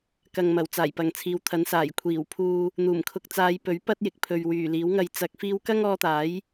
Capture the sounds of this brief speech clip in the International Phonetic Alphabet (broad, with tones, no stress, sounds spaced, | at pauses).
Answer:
k ɐ˨ ŋ m ɐ˨˩ w t͡s aː˨˩ j p ɐ˨ ŋ t͡sʰ iː˨˥ w t̪ʰ ɐ˨˥ n s aː˨˩ j kʷʰ iː˨˩ w pʰ uː˧ | n̪ uː˨˩ m kʰ ʊ˨ k̚ t͡s aː˨˧ j p ɵ˨˥ ɥ p ɐ˥ t̚ j ɪ˨ k̚ pʰ ɵ˨ ɥ w yː˨˩ l iː˨˥ w ŋ ɐ˧ j t͡s ɐ˧ k̚ f iː˧ w k ɐ˥ ŋ ɔː˧ t̪ aː˨˥ j